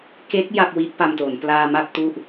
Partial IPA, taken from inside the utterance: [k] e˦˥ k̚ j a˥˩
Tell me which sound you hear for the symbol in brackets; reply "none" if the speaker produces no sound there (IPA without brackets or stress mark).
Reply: k